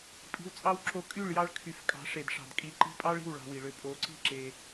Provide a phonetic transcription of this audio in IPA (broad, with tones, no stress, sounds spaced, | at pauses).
pʼ i̤˧ w t͡sʼ ɑ˦ w ǁ o˧ kʼ y˦˨ ɭ j ɑ˧ ɭ kʰ y˨ f kʼ ɑ̤˨˦ ʂ e˨ d ʂ ɑ̤˨ d kʼ i˨˦ ǃ i̤˧ pʼ ɑ˦ ɭ i̤˦˨ w ɭ ɑ̤˧ w i˨ ɭ ø˧ pʼ o˨˦ ǀ i̤˦ ǁ e˧